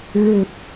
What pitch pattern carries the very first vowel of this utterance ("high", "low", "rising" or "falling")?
low